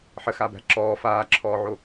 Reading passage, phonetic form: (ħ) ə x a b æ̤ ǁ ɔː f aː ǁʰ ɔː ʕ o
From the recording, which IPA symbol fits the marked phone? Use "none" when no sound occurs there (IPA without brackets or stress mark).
ħ